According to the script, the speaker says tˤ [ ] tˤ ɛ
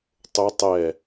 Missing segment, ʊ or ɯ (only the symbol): ʊ